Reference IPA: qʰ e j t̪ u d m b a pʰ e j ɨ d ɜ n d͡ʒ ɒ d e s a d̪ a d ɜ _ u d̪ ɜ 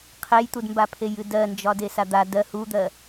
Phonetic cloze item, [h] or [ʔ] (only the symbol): h